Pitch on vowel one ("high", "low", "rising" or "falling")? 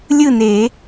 falling